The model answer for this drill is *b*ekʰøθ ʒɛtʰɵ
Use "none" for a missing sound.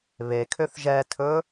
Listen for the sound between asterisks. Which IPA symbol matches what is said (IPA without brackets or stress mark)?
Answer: β